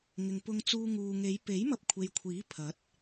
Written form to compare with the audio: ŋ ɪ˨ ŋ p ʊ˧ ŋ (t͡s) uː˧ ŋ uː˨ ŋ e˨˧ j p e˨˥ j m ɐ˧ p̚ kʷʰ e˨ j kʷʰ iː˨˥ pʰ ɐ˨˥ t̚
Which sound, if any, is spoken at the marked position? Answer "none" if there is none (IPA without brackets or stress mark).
t͡s